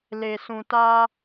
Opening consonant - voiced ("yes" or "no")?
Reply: yes